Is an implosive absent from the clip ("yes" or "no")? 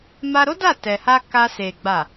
yes